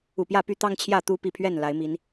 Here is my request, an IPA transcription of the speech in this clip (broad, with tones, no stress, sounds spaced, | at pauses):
u˨˩ p j ä˥˨ p y˦ t̪ ɑ˦ ŋ t͡ɕʰ j ä˥˨ t̪ u˥˨ p i˥˨ pʰ ɥ ɛ˥˨ n l a˨˦ ɪ̯ m i˨˦ n